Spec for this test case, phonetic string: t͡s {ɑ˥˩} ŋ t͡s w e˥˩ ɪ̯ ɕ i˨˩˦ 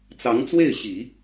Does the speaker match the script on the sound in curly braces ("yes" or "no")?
no